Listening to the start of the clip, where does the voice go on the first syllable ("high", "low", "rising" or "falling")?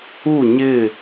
falling